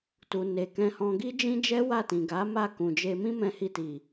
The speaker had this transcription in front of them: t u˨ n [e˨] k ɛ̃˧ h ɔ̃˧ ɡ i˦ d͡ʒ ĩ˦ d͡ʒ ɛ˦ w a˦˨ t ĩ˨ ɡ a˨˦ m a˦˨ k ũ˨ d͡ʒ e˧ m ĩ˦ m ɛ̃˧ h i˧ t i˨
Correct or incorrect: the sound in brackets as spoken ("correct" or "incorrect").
correct